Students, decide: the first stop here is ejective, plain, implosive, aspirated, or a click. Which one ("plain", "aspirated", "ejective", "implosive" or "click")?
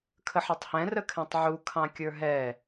aspirated